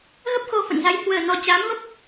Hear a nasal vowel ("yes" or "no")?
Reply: no